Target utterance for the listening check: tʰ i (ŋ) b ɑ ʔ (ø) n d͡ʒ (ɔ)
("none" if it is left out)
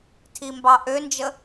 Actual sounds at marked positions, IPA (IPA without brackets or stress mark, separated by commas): m, ø, ə